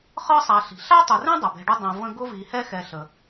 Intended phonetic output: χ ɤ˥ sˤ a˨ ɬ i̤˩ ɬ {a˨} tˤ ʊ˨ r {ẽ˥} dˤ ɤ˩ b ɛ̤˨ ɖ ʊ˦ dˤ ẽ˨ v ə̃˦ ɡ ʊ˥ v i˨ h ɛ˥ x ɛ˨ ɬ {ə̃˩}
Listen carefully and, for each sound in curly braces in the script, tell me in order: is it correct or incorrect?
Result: incorrect: a˥, correct, incorrect: ə˩

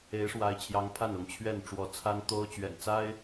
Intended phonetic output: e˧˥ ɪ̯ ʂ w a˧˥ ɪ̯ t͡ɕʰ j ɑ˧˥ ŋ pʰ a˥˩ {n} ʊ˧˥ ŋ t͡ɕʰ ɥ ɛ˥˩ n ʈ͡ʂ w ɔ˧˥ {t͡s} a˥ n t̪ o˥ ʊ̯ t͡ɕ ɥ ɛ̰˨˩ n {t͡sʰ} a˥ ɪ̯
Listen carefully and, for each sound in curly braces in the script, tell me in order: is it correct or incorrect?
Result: correct, incorrect: t͡sʰ, incorrect: t͡s

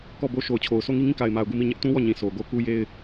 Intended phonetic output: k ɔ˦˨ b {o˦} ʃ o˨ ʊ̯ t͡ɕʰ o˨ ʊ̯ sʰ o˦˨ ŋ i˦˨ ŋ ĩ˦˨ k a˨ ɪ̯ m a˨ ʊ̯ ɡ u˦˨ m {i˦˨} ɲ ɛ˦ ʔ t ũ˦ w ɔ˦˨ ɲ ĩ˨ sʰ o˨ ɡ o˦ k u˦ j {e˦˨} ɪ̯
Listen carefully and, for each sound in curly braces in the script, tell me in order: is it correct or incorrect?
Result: correct, correct, incorrect: e˦

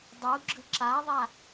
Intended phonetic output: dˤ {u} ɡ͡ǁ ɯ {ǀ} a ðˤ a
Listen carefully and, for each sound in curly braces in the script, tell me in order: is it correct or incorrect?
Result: correct, incorrect: ǁ

